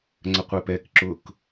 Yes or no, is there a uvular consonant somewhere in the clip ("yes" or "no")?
yes